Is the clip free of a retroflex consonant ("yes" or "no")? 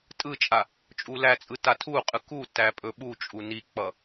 yes